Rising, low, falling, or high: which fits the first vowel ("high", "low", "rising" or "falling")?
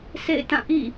falling